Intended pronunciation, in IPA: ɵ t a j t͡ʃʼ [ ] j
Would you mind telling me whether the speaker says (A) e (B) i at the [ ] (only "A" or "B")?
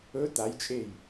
A